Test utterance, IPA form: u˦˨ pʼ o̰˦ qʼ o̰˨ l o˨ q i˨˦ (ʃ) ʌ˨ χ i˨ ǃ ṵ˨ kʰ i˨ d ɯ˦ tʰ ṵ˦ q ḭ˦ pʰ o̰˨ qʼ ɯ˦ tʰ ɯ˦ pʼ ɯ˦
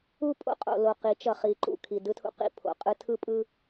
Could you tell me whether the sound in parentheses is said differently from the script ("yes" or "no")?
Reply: yes